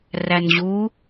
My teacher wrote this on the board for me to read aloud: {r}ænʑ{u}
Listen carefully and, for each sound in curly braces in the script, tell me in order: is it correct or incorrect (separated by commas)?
correct, correct